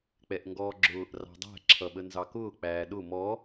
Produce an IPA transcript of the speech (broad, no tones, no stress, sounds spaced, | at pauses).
k͡p ɛ ʔ ŋ ɡ ɔː ɡ͡ǁ ʊː ʔ r ɑ̤ dˤ æ̤ ǁʰ ʌ ɓ ə n z ɑ k ʊː k͡p æː ɗ ʊ m ɔ